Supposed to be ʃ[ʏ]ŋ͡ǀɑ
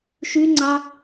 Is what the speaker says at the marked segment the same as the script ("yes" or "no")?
no